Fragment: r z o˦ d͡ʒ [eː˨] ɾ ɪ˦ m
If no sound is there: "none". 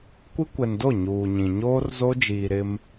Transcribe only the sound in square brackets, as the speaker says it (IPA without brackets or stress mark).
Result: iː˨